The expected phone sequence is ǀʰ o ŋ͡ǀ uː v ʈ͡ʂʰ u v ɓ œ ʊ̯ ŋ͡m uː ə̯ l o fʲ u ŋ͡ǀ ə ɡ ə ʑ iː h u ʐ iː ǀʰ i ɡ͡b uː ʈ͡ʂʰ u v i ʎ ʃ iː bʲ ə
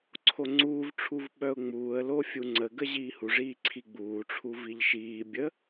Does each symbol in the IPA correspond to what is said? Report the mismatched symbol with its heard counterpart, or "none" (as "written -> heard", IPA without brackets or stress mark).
none